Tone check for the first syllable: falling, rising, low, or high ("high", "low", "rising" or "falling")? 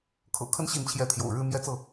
low